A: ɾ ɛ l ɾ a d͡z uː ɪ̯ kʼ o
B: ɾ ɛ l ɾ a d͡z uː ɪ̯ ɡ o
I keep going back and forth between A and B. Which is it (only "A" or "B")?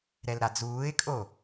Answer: A